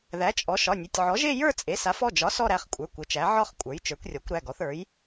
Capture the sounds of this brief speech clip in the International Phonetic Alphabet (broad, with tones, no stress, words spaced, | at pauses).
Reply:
ðæ˩˥t͡ʃʼɔ˩˥ ʃɒ˩˧˩nʲe˩˧˩tʲ ʕɔ˩˥ʒe˥˧ jə˞˥˧t͡sʼe˩˥sa˩˥f ɔ˩˧˩d͡ʒɒ˩˥ sɔ˥˧ɾæ˩˧˩χkʷʼə˞˩˧˩ kʷɘ˩˥t͡ʃæ˩˥ ʕɒ˥˧χ kʷʼə˞˩˥jt͡ʃə˞˩˥kʷrʲɔ˩˥kʷ ɾæ˩˧˩ɡɔ˩˥θə˞˩˥j